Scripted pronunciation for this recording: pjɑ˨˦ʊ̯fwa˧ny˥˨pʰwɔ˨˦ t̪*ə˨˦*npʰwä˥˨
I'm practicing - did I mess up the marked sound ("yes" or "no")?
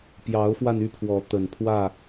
yes